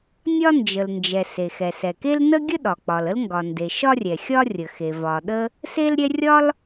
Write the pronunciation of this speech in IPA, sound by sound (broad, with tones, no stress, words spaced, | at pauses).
nʲɒ˥ nd͡ʒə˩lnd͡ʒɛ˩ se˩xɛ˩sɛ˩ke˥l nə˥ɡʲə˥ɗɒ˩k͡pɒ˩l ə˥lŋɡɒ˩nde˩ ʃɒ˥rʲɛ˩xʲɒ˥ rʲə˩xe˩ vɒ˩ɗə˥ | se˥lɾʲɛ˥ rʲɒ˥l